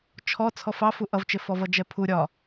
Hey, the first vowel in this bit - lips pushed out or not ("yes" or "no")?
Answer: yes